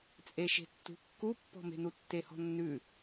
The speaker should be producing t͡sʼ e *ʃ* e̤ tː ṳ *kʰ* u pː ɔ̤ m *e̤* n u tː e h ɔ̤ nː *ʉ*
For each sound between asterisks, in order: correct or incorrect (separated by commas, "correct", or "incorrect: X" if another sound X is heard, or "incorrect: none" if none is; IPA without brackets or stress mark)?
correct, incorrect: kː, correct, correct